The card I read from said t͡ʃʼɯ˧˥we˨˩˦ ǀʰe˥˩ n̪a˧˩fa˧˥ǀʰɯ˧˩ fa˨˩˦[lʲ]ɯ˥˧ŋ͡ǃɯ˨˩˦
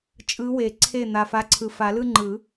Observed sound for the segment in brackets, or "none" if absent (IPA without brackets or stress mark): l